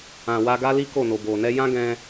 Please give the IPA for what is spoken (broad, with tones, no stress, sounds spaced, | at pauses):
ã˨ w a˧ ɡ a˦ l i˦ k o˦˨ n o˨ b o˨ n ɛ˧ j ã˦ ɡ ɛ̃˧